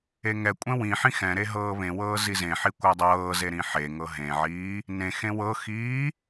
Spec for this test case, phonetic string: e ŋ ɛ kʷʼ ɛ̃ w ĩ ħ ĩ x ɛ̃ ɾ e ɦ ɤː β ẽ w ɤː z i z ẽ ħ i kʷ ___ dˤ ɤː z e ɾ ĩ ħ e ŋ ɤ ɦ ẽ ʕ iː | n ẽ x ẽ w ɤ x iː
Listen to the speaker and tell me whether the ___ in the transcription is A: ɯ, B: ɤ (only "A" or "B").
B